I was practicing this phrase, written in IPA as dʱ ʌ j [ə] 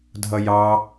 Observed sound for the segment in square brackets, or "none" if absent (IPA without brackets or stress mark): ɑ